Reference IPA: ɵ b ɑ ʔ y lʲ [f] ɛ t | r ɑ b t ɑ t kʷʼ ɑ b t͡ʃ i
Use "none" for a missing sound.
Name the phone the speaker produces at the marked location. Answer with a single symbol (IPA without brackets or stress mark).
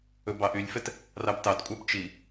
f